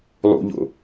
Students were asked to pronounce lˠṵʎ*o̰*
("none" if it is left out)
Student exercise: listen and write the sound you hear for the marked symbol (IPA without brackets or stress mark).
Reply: o̰